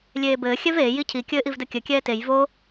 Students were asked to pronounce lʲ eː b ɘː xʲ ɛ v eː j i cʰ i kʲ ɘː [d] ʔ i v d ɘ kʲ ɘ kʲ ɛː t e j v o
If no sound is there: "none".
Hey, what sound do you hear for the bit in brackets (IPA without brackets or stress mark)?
none